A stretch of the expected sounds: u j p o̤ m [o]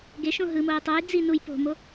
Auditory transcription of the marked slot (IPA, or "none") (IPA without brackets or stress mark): o